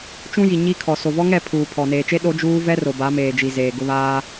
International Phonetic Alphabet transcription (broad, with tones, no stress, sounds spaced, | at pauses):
t͡ʃ ũ˦ j i˨ ɲ i˦ kʰ ɔ˨ s o˨ v ɔ˦ ŋ ɛ˦˨ pʰ uː˨ pʰ ɔ˨ n eː˨ t͡ʃ e˦ ɗ o˦ d͡ʒ uː˦ v ɛ˦ r o˨ b a˨˦ m eː˨ d͡ʒ i˨ z eː˨ ɡ ʊ˦ β aː˦